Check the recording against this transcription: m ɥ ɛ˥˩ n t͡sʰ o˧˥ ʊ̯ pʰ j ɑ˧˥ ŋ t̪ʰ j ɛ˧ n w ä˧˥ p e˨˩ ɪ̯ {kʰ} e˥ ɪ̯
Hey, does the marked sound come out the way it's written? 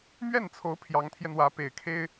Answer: yes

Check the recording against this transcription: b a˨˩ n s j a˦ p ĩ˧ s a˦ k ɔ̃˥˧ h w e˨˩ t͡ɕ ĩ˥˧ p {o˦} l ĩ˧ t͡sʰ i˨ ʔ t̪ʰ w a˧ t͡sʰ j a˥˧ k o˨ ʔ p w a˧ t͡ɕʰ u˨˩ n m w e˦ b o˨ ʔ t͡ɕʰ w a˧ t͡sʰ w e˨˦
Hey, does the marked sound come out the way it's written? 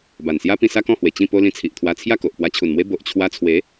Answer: yes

